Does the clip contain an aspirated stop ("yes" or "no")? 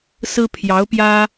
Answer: yes